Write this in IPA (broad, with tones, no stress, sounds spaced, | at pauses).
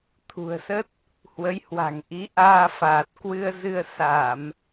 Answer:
t̪ʰ ṳ˨˩ ə̯ s ə˦˥ t̚ | h w ə˨˦ j h w a̤˨˩ ŋ ʔ i˨˦ ʔ aː˧ f aː˨˩ t̚ k w ɨ˧ ə̯ z ɨ˧ ə̯ s a˧˩˨ m